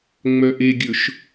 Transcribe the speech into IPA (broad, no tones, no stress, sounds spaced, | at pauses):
ŋ͡m œ ʔ e ɡʲ ɵ ʃ